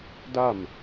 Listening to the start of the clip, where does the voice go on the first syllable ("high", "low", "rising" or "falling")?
falling